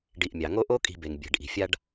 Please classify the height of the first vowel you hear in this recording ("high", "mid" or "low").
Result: high